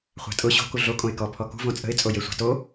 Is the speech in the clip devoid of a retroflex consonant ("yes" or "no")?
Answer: yes